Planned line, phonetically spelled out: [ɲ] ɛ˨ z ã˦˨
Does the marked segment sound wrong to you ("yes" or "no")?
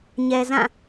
no